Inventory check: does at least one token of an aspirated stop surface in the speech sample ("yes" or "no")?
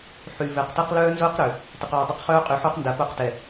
no